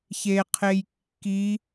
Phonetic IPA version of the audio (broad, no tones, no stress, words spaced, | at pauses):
çeqʰej kːi